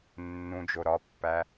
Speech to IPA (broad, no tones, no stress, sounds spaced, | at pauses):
nː ũ d͡ʒ o ɾ ɒ pː æ